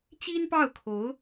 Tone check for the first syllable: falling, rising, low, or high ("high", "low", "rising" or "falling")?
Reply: high